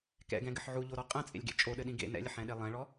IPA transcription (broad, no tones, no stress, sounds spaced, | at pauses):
k ɛ̰ ɡ ɛ̃ ɡ ɘ ħ ʕ u ʎ o ɾ ɔ qʼ ɛ̃ t͡sʼ ḛ lʲ ɡ ḛ t͡ʃʼ o ɗ ɘ ɗ ĩ ɡ ḛ n ɛ̰ lʲ ɘ ħ ɛ̃ ɗ e lˠ ɛ̃ ɭ ɔ